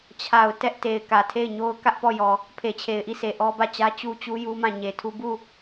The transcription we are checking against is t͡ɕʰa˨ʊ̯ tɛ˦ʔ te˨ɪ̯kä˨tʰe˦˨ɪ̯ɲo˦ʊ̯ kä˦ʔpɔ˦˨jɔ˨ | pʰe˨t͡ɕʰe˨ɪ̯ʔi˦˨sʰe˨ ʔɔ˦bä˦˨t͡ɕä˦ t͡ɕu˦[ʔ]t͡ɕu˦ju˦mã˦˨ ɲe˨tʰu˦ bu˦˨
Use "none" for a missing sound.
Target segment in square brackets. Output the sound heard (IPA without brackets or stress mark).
none